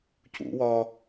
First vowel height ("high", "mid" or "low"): high